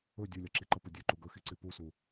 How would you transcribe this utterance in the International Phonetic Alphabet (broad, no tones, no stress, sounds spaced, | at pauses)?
ɵ dʲ u lʲ ɒ ǁ i ǃ ə p ə dʲ ɵ ǃ u ɡ ɵ x i ǀ i p u s u